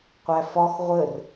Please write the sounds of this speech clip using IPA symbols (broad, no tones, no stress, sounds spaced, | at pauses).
qʷ æ f ɒ x ʁʷ ə r